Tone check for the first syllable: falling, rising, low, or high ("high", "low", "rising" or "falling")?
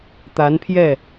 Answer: rising